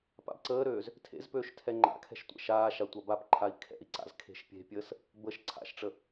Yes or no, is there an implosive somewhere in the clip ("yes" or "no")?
no